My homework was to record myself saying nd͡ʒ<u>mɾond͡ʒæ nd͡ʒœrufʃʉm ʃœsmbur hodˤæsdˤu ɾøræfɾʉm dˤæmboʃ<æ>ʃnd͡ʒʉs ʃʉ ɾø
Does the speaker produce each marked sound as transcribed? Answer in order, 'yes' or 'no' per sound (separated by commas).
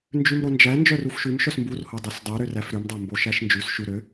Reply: no, yes